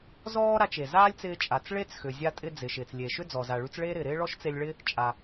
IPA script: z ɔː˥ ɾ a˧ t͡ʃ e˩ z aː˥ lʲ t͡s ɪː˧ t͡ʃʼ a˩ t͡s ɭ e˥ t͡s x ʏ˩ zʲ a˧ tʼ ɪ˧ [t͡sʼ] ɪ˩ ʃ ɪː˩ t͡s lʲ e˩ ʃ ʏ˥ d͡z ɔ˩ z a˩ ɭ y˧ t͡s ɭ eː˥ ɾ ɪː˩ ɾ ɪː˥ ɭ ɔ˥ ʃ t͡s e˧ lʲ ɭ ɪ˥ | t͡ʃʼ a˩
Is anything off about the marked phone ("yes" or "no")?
yes